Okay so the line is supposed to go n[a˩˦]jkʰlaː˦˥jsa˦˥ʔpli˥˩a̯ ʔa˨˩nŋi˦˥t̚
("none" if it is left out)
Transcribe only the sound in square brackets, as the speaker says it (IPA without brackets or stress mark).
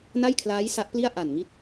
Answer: a˥˩